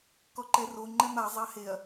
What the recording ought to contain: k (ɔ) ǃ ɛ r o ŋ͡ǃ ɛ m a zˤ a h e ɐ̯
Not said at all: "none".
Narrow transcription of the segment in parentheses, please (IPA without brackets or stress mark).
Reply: ɔ